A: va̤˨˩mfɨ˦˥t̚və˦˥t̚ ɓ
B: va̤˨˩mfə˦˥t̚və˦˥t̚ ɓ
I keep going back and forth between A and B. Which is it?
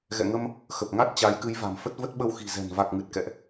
B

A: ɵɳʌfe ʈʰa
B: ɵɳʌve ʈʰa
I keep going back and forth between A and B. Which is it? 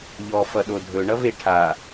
B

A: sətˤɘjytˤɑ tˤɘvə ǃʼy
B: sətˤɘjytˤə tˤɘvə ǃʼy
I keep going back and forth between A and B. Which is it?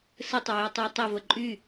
A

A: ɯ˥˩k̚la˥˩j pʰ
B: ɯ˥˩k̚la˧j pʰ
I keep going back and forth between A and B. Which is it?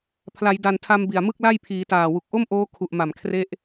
A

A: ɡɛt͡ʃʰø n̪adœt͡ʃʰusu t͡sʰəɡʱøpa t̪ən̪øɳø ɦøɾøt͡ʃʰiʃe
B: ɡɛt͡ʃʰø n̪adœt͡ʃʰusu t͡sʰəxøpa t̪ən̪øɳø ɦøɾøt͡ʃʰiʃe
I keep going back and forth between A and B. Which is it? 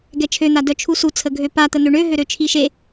A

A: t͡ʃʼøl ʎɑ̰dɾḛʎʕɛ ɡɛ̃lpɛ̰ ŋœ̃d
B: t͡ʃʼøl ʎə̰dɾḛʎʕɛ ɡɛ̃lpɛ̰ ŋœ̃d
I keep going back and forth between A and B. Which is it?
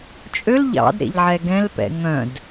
A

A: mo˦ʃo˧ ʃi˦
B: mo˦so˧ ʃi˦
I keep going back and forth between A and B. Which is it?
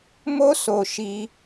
B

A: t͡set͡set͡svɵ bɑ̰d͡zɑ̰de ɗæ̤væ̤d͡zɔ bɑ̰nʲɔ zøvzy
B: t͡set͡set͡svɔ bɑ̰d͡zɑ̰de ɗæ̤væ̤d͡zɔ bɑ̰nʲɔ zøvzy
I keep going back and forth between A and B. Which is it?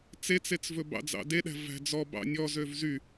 A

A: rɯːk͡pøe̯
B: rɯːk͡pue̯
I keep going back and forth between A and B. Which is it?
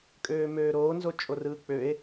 A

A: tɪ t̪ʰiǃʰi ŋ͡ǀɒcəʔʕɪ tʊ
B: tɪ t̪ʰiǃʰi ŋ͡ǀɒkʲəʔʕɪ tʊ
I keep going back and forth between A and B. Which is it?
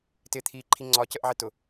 A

